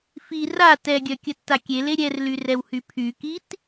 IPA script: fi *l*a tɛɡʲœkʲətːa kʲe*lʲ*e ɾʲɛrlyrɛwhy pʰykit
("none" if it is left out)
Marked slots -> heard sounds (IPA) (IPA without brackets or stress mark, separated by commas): r, l